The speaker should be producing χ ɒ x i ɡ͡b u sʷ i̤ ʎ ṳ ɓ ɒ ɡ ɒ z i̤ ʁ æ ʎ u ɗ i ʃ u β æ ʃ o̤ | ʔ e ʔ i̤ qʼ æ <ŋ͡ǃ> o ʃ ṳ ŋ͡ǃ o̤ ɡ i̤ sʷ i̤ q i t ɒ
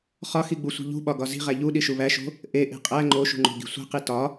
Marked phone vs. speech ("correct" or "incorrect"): correct